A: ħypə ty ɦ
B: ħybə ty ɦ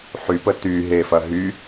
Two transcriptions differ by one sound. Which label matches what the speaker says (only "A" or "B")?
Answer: A